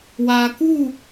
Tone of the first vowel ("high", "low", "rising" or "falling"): low